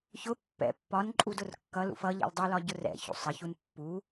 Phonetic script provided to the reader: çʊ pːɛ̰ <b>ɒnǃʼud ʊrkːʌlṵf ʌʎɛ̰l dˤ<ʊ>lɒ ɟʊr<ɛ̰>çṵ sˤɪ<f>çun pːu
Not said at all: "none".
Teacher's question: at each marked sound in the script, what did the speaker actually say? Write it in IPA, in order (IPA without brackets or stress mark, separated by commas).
pː, u, ɛ̰, none